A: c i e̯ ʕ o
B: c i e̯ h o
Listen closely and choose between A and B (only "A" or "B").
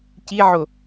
A